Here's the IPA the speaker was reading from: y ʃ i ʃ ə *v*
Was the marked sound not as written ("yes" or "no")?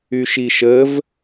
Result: no